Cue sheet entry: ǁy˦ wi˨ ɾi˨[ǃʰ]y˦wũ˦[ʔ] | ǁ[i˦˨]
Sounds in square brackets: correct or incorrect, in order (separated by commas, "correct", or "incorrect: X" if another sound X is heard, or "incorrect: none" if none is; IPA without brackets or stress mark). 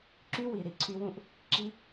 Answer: incorrect: ǀʰ, correct, incorrect: i˦